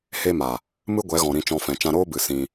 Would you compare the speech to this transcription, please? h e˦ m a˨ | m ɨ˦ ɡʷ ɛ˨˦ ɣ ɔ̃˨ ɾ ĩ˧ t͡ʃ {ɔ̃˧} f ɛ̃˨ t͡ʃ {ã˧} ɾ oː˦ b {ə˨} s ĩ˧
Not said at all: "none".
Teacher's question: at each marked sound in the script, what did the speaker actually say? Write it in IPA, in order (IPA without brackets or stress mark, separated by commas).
ɔ̃˧, ã˧, ɨ˨